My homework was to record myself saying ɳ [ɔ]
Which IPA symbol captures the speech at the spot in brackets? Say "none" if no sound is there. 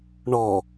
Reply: ɔ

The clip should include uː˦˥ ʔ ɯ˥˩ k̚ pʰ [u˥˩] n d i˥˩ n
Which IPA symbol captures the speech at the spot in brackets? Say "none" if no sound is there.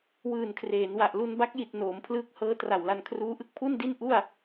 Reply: u˥˩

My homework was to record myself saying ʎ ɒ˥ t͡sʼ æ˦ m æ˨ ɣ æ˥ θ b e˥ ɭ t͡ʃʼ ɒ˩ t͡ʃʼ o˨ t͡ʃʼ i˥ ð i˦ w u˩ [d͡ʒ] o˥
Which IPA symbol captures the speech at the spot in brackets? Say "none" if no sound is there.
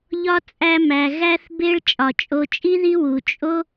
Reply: t͡ʃʼ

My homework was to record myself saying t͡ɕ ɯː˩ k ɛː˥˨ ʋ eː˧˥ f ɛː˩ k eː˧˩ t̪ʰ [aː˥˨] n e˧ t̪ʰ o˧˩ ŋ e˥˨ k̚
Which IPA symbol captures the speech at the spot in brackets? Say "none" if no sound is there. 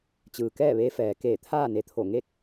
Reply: aː˥˨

